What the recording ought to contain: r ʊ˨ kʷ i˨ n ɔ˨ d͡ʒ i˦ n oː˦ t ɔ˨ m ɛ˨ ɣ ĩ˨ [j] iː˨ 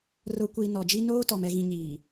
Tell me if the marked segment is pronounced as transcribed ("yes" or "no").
no